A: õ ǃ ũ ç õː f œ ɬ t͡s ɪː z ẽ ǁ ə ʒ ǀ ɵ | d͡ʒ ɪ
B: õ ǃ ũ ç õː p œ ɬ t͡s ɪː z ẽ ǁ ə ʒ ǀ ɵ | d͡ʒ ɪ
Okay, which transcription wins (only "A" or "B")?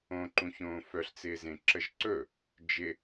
A